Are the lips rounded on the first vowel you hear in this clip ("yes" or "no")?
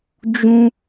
yes